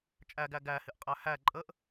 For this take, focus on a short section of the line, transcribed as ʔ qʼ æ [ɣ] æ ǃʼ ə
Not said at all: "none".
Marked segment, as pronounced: h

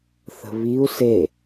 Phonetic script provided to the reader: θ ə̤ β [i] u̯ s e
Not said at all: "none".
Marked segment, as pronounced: i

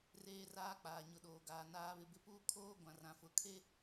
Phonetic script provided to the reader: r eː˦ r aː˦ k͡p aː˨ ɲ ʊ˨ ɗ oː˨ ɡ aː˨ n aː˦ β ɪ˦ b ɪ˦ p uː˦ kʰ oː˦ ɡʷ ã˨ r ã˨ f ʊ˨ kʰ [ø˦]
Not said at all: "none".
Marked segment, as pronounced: e˦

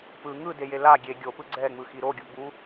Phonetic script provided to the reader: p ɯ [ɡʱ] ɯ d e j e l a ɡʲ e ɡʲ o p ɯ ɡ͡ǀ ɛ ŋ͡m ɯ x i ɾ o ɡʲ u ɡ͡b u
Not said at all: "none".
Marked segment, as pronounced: ŋ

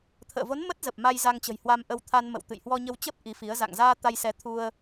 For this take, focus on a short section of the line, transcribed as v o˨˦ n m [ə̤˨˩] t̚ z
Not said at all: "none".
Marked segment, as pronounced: ə˦˥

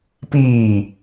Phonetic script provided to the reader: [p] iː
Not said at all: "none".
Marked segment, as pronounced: p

